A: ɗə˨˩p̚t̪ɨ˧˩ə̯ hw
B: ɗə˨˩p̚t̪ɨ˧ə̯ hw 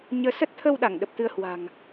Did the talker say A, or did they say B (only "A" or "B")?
B